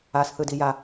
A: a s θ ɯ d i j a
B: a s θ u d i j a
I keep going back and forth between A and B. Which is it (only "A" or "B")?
A